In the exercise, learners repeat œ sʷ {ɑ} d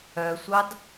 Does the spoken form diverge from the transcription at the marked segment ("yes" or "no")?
no